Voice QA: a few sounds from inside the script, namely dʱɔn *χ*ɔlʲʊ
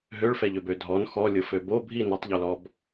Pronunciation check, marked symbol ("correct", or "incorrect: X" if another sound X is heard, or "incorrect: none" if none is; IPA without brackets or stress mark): incorrect: x